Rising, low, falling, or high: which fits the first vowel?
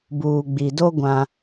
low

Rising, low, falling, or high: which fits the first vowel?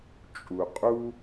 low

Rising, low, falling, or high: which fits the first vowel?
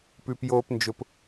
low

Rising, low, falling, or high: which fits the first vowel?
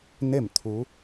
falling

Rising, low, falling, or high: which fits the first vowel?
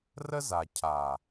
high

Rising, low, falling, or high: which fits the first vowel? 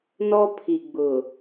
high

